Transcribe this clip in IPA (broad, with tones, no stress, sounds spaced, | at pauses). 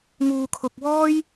ŋ uː˨ kʰ ʊ˨ k̚ w ɔː˥ j